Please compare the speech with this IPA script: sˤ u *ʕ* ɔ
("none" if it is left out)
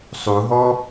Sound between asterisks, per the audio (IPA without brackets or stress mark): ɦ